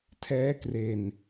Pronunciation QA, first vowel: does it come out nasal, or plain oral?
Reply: oral